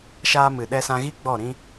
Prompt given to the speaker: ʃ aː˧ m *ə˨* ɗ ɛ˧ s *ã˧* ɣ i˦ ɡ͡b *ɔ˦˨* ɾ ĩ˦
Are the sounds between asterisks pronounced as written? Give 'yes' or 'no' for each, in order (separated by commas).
no, yes, yes